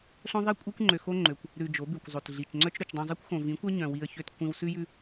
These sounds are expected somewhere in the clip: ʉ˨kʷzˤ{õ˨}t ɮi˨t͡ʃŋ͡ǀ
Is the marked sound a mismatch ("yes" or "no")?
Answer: yes